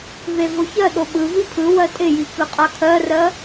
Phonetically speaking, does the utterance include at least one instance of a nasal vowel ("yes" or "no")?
no